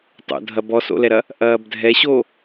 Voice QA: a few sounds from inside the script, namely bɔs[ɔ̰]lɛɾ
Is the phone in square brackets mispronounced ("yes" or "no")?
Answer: yes